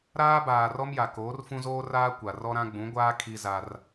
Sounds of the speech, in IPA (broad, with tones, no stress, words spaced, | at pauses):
ɾaː˦baː˨rɔ˦mja˨ koː˨˦rfũ˦zoː˦ raː˦kʷa˨rɔ˦ɾã˦ ɡ͡bũ˨˦ɡʷaː˦ kʰi˦za˦r